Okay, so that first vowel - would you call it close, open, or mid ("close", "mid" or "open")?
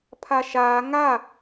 open